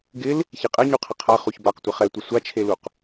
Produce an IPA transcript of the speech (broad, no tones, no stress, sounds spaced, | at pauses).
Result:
ɡ ɪ l | ç i qʼ ɛ ɲ u qʰ ɪ qʰ a χ u ç b a q tʷ ɪ χ ɛ tʷ ɪ sʷ a t͡ʃʰ e l u q